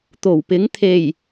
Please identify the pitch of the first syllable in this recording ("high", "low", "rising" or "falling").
low